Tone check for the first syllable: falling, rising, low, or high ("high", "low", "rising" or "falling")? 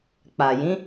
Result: low